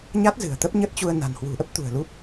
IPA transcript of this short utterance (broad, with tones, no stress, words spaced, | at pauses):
ɲa˦˥t̚zɨ̤˨˩ə̯ t̪ə˦˥p̚ɲə˦˥t̚t͡ɕu˧ə̯ na̤˨˩nhwṳ˨˩ʔə˦˥p̚t̪ṳ˨˩ə̯ lu˦˥p̚